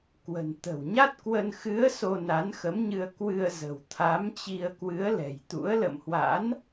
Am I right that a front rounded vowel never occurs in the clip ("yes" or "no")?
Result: yes